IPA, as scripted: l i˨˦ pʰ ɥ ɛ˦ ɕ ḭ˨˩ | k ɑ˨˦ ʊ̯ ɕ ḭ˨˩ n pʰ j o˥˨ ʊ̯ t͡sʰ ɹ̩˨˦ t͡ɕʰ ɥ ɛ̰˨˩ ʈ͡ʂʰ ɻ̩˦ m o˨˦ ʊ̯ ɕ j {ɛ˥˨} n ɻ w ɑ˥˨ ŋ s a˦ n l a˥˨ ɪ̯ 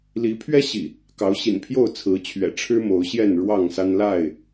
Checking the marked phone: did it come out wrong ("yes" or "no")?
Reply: no